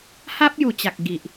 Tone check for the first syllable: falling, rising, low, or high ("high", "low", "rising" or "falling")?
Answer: high